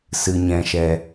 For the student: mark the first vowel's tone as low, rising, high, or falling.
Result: low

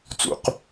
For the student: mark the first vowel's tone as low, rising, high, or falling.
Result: low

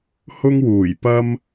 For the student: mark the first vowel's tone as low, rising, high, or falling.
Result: high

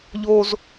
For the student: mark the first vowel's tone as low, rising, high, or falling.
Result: high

